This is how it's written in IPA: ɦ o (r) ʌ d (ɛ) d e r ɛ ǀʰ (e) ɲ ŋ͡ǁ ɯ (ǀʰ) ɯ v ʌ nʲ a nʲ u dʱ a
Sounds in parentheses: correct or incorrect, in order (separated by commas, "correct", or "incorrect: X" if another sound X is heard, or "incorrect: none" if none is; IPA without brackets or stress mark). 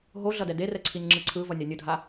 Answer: incorrect: ɮ, correct, incorrect: i, correct